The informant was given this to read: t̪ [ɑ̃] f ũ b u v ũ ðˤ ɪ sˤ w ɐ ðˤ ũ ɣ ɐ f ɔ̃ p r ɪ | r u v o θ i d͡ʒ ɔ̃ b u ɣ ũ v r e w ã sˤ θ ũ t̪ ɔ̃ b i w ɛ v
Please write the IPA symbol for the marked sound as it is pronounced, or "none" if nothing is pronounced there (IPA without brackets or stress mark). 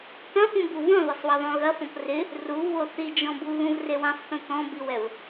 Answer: ɐ̃